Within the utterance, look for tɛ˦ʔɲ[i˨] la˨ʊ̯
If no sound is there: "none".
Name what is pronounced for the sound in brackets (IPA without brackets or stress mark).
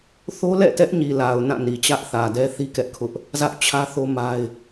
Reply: i˨